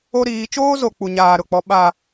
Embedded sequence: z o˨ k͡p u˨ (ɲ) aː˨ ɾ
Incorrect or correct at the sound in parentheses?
correct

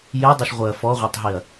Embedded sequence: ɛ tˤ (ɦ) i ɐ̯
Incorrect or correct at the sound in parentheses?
correct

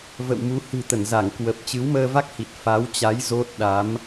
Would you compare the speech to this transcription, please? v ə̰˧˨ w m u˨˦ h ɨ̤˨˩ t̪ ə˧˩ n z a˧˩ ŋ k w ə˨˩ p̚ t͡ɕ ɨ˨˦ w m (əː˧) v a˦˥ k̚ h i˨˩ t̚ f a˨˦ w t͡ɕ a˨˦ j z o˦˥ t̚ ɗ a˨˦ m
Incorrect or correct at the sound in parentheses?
correct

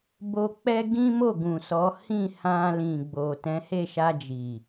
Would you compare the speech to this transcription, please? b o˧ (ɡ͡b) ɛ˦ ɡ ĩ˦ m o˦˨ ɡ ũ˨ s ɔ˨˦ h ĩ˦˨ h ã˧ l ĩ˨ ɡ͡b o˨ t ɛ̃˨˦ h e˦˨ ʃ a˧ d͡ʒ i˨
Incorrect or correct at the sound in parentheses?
incorrect: k͡p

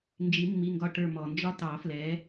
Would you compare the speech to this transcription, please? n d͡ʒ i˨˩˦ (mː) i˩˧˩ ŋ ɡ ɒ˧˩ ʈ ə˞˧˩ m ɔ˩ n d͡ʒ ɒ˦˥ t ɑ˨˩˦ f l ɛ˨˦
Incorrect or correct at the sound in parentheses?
correct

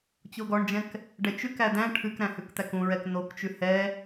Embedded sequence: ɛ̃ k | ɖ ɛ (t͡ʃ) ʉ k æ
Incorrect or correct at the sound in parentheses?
correct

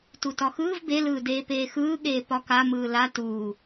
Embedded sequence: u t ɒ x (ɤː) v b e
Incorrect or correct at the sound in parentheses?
incorrect: ɯː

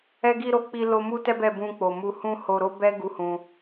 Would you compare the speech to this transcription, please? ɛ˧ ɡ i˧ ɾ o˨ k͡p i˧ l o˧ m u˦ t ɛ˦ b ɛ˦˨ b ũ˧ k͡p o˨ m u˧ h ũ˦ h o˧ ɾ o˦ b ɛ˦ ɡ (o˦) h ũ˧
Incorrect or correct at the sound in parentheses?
incorrect: u˦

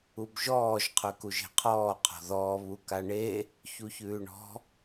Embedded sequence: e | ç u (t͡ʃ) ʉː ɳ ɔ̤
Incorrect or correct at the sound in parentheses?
incorrect: ç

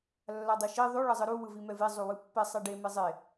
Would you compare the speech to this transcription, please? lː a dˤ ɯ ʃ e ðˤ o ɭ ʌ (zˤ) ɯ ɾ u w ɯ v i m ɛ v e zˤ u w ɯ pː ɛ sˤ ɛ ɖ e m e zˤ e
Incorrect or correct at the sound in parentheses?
correct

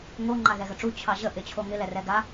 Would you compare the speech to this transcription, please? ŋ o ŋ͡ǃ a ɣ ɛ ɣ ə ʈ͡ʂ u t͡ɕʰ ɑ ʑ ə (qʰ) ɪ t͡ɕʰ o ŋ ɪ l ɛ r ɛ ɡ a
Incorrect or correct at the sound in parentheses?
incorrect: ʔ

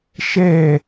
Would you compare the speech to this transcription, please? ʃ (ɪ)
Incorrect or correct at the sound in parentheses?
incorrect: ɛ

